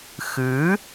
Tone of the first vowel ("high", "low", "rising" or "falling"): rising